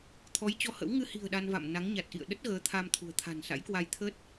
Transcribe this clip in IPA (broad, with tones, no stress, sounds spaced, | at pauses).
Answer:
t̪ʰ ɔ˨˦ j t͡ɕ ɔ˧ h ə̰˧˥ w ŋ ɨ˧ h i̤˨˩ ə̯ ɗ a˧ n v a̰˧˨ m n a˨˦ ŋ ɲ a˨˩ t̚ ʔ ḭ˧˨ ə̯ ɗ ə˦˥ t̚ ɣ əː˨˦ t̪ʰ a˧ m t̪ʰ ṳ˨˩ ə̯ t̪ʰ a̤˨˩ n s a̰˧˥ j k w a˧ j t̪ʰ ə˦˥ t̚